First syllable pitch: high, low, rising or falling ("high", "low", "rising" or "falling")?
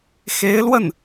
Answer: rising